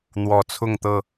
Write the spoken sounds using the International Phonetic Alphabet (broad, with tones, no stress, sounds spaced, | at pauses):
n̪ w ɔ˨˩ t͡sʰ ʊ˥˨ ŋ t̪ ɤ˥˨